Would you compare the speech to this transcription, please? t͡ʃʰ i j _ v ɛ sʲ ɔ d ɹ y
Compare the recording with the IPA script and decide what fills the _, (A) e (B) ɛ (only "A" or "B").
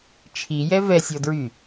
B